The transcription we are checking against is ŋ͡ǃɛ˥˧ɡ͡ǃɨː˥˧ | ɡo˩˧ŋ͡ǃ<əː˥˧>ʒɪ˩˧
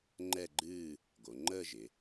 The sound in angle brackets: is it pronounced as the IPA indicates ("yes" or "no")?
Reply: yes